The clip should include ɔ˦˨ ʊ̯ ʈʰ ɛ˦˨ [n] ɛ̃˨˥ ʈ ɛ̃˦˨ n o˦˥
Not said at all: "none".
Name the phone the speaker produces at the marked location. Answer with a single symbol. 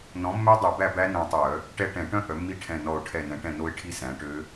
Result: n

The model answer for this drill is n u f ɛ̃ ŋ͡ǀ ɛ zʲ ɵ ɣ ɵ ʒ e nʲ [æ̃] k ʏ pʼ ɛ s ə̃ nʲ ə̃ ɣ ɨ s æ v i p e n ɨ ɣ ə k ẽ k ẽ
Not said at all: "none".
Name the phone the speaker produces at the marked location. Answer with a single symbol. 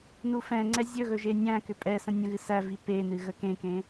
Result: æ̃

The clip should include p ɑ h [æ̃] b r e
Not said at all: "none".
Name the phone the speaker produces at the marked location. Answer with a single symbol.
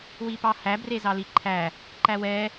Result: æ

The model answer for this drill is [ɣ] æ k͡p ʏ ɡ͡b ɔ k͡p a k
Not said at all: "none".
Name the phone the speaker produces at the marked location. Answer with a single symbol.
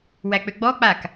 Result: w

